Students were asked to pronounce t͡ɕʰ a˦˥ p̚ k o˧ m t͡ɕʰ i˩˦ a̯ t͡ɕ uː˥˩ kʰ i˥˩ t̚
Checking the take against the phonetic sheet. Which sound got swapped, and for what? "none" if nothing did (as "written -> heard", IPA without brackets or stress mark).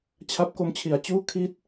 none